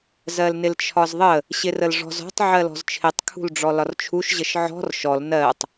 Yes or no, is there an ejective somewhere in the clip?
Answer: no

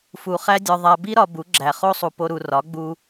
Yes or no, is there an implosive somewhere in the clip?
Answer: no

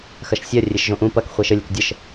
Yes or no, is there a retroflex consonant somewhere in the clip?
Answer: no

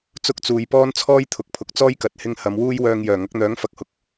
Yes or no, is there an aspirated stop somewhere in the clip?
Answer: yes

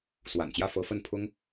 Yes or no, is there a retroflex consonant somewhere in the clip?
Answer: no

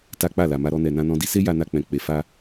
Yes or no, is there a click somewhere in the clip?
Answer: no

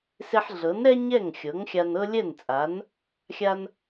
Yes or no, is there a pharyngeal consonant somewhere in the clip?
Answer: yes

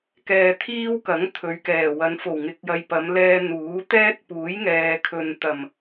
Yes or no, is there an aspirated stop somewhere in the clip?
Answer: yes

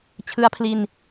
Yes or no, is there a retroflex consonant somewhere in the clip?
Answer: no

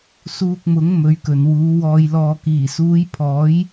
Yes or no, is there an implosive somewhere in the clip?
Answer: no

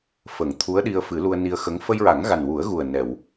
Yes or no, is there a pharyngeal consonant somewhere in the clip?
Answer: no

